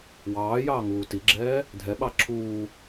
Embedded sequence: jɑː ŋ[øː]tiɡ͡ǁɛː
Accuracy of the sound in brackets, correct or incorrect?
incorrect